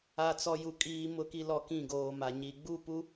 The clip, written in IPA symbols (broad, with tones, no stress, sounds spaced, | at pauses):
a˨ t͡s ɔ˨ j u˨ kʼ iː˨ m ʊ˨ k i˨ l ɔ˨ k ĩ˦˨ ɡ oː˨ m a˨ ɲ i˨ ɡ͡b u˦˨ p u˦